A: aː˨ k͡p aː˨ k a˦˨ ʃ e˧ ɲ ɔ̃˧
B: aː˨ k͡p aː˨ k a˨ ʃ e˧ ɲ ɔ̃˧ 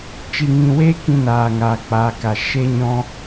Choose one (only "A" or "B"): B